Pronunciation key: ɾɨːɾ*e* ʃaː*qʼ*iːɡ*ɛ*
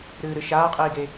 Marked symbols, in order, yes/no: no, yes, no

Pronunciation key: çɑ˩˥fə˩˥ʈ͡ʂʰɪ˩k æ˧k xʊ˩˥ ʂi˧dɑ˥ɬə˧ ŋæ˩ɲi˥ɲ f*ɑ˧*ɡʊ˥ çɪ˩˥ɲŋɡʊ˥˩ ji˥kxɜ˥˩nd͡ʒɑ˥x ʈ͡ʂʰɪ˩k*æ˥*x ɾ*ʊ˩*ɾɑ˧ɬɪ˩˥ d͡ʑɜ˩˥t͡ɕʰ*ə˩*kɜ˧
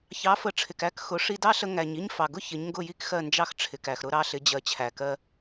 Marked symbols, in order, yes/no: no, no, no, no

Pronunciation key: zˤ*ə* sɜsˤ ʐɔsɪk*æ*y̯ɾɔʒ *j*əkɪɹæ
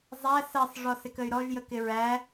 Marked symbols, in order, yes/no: no, no, yes

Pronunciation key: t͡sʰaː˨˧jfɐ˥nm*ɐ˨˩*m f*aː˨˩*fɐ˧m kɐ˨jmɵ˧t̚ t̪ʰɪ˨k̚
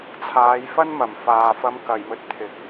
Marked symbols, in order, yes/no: yes, no

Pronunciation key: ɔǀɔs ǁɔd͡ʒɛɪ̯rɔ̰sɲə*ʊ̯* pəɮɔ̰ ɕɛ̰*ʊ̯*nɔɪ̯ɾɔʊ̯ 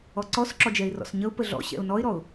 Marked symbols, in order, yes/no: yes, yes

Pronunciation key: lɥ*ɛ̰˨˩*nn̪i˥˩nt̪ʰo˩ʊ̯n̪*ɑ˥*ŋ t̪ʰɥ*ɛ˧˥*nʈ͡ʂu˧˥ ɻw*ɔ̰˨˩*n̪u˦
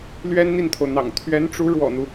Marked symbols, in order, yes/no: no, no, yes, yes

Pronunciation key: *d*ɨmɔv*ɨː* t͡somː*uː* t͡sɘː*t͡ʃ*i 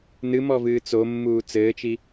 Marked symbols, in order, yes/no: no, yes, yes, yes

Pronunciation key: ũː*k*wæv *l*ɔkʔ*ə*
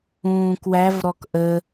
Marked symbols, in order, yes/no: yes, no, yes

